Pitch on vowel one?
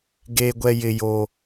low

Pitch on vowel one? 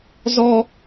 high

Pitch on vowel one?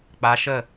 rising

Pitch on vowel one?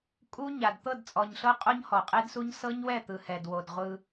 high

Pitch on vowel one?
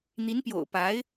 rising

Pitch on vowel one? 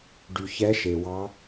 low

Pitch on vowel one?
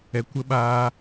low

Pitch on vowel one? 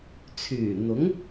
low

